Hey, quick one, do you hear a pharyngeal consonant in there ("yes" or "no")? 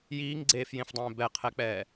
no